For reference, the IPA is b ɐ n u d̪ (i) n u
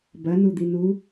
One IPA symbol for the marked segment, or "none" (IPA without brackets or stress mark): i